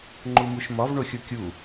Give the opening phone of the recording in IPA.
ŋ͡ǃ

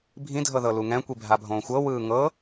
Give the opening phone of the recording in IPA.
bʱ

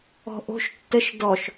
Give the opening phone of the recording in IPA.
ɔ̤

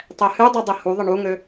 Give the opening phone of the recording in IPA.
tˤ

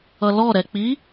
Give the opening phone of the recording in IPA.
ʌ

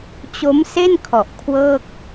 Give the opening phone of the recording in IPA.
t͡ɕ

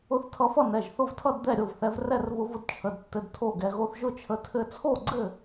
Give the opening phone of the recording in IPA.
ʊ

